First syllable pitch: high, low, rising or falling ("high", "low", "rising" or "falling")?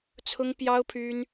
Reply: high